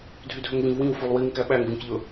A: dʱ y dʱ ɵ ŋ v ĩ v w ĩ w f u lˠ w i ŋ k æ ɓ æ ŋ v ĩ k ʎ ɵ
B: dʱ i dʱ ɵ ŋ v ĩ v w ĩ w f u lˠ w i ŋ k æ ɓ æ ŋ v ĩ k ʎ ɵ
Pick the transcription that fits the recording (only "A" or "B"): A